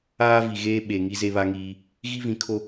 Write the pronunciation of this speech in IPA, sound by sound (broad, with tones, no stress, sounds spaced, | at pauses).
aː˦ v i˨ ɣ eː˦ ɓ e˨ ŋ i˦ z e˦ β a˦ ŋ iː˦ | ɣ i˦ v ĩ˨˦ kʰ o˦